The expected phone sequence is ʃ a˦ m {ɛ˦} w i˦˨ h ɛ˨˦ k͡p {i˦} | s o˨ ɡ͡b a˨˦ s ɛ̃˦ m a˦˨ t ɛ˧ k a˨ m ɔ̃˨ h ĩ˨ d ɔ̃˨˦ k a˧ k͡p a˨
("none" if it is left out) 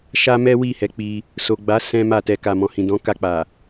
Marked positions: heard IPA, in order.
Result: ɛ˦, i˧

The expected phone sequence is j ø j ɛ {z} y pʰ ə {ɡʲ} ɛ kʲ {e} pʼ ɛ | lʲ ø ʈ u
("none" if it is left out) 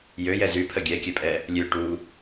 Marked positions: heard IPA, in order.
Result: z, ɡʲ, ɛ

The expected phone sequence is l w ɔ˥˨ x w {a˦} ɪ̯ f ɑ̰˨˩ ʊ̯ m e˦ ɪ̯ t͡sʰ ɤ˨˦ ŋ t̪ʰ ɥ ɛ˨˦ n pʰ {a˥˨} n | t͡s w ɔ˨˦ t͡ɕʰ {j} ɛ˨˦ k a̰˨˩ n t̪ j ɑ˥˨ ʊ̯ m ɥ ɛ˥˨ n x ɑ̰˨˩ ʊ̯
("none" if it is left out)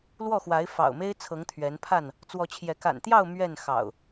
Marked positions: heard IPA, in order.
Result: a˨˦, a˥˨, j

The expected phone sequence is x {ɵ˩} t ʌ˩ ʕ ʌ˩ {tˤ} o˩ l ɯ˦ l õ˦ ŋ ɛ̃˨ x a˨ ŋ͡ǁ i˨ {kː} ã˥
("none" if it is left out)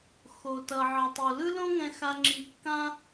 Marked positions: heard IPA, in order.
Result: o˩, tˤ, kː

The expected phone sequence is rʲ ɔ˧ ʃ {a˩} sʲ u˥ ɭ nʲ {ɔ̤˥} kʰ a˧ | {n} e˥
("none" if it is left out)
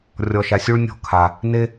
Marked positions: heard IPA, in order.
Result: a˧, ɔ̤˥, n

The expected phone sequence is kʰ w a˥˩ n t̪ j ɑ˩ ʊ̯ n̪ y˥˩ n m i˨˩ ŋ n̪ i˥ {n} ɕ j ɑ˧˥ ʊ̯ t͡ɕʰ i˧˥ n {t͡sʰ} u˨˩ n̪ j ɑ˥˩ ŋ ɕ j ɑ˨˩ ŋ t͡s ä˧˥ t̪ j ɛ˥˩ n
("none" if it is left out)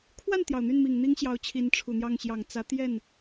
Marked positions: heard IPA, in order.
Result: ŋ, ʈ͡ʂʰ

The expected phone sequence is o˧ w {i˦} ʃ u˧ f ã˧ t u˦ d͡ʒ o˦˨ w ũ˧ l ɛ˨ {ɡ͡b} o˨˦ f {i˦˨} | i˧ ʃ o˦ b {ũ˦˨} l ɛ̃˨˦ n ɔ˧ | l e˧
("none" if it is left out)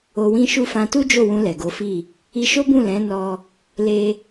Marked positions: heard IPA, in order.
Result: ĩ˦, ɡ, i˦˨, ũ˦˨

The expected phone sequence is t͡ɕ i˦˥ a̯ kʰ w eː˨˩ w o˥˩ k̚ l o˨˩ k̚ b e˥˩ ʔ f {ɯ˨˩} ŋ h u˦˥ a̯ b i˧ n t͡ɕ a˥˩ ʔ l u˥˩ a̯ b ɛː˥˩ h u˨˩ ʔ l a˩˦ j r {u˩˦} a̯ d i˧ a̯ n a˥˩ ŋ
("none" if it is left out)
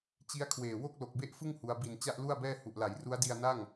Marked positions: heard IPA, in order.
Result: ɯ˥˩, u˦˥

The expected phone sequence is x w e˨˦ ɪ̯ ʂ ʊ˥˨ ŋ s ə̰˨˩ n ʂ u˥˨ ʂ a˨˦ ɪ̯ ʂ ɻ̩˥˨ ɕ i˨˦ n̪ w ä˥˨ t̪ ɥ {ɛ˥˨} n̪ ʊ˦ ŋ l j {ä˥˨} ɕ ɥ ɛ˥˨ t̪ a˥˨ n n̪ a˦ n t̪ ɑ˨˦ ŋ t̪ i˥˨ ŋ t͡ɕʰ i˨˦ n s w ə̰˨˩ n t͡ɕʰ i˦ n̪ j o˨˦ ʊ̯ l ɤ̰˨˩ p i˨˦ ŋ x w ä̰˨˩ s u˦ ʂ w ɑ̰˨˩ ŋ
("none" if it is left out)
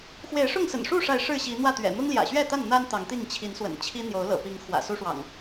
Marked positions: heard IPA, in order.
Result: ɛ̰˨˩, ä̰˨˩

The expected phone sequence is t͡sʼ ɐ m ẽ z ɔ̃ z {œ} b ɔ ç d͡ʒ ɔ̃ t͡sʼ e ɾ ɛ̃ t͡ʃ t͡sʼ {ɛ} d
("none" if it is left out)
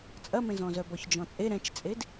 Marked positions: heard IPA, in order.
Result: œ, e

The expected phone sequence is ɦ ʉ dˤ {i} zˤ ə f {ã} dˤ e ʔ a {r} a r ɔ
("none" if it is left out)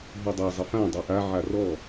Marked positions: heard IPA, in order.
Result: e, ã, ʕ

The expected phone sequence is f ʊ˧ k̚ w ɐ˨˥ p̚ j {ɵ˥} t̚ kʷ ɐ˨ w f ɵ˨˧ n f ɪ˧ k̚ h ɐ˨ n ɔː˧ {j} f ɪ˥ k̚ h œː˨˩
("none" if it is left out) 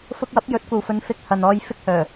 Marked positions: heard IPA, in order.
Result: ɵ˨˥, j

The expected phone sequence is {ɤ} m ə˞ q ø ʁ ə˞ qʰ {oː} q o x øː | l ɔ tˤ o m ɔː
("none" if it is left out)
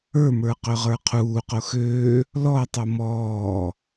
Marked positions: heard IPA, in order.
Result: ə˞, uː

